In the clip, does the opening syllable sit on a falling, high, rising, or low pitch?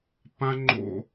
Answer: high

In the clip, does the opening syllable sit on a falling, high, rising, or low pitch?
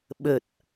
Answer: low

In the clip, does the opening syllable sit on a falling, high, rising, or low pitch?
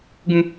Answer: high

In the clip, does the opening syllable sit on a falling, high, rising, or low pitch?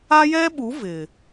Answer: high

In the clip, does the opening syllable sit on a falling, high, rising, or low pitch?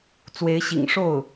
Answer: rising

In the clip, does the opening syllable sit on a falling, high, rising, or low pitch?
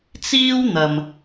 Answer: high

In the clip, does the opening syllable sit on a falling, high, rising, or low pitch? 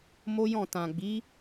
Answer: high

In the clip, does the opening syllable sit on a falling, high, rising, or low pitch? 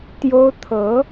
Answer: high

